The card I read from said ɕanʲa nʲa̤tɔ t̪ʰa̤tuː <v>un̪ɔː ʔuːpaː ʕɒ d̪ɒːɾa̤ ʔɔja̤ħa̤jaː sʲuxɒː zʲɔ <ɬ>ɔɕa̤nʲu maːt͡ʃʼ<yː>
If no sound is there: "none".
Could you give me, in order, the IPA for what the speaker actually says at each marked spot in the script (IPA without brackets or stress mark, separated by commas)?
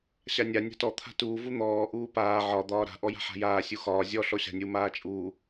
v, ɬ, uː